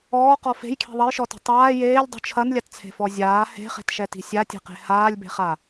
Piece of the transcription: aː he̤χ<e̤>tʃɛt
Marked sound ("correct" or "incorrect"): correct